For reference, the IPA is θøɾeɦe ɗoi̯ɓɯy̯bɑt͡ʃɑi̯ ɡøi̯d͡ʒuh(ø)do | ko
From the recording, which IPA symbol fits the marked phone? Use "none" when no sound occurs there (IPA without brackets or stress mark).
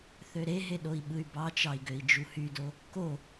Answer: y